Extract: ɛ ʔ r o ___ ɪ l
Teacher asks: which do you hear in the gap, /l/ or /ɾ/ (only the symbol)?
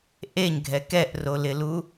l